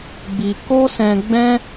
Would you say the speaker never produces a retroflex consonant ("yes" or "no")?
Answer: yes